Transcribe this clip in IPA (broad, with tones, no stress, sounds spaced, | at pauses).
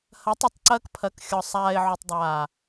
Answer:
h ɐ˨˦ tˤ y˨ tˤ ǀ ɐː˧ k pʰ ɐ˨˦ k xʲ ɔ˨ sˤ aː˨ ɪ̯ ʕ u˨ tˤ dˤ aː˨